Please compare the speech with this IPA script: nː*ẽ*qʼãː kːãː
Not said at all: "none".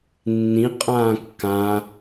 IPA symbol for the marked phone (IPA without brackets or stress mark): ĩ